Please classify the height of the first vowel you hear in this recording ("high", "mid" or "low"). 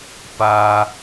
low